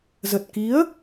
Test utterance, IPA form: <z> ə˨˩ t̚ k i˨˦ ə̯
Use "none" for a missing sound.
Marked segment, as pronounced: z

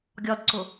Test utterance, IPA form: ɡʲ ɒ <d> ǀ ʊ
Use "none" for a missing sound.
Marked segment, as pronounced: d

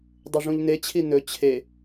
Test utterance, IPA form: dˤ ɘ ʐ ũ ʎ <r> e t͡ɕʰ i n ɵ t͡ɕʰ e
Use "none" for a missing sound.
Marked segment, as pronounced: n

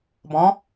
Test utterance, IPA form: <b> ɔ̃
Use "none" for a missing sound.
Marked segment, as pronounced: b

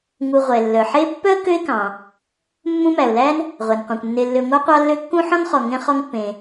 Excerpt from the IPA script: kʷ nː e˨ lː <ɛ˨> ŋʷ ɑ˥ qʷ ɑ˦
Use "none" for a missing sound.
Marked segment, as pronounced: ø˨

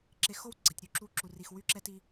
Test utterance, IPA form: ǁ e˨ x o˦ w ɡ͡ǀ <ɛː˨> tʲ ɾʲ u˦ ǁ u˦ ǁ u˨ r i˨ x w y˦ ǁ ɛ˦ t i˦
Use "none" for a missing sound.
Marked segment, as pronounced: ɛ˨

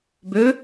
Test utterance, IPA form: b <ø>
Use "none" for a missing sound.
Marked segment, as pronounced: ø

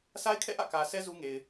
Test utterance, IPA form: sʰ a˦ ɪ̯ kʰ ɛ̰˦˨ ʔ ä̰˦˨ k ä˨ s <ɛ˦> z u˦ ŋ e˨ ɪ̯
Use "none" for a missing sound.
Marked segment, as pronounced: ɛ˦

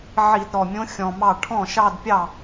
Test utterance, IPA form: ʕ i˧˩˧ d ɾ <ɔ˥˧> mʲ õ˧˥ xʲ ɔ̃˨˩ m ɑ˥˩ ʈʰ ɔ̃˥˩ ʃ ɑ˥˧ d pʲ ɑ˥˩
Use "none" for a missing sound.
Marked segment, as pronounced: ɔ˨˩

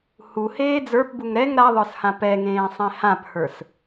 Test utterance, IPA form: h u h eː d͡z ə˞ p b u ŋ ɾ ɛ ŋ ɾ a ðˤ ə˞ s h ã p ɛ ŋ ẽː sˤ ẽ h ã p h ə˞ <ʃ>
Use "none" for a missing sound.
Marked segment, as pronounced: s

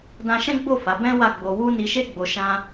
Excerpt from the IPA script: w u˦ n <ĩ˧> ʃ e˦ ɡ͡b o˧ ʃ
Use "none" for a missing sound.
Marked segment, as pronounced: i˧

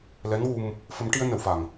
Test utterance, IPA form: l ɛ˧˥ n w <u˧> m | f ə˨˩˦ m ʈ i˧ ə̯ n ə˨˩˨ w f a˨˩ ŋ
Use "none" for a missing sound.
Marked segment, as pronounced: u˧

